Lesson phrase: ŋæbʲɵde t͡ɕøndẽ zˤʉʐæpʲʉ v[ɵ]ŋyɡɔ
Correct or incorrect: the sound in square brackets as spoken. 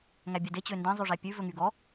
correct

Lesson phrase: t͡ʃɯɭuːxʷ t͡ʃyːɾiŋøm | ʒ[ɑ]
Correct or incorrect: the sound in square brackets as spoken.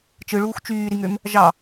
correct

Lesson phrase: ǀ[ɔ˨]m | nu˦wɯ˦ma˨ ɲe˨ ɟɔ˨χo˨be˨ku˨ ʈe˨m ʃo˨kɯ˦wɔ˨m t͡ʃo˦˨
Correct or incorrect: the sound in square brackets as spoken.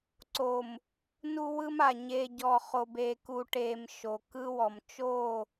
incorrect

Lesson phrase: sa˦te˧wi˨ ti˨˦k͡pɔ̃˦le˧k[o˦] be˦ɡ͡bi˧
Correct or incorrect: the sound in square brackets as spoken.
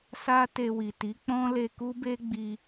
incorrect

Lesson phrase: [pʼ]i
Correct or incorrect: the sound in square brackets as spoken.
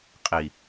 incorrect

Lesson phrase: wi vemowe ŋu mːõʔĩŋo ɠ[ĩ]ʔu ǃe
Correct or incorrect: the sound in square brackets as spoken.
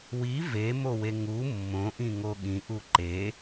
correct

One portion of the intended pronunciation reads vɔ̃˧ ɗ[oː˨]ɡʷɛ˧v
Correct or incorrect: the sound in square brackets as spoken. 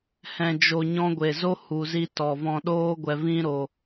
incorrect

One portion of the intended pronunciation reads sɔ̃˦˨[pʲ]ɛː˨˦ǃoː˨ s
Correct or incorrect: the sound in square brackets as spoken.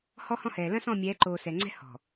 incorrect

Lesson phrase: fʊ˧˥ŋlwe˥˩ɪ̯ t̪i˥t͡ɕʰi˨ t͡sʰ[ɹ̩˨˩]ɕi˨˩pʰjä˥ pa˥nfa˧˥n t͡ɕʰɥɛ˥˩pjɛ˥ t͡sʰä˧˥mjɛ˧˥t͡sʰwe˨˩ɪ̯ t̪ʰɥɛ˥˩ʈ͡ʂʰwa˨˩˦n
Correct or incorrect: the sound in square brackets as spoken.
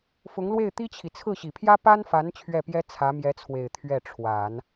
incorrect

